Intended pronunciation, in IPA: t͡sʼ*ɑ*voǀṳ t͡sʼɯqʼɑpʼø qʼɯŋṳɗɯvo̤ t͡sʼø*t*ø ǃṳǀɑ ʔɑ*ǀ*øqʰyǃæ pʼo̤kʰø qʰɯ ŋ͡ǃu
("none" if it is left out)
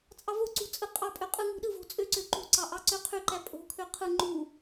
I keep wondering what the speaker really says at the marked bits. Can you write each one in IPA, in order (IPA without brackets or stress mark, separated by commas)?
ɑ, ǀ, ǀ